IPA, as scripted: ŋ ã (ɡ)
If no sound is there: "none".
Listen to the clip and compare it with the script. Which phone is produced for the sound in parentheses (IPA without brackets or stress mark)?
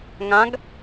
ɡ